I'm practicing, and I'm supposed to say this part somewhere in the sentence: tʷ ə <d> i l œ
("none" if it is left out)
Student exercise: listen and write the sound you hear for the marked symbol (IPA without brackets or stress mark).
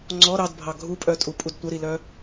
ɾ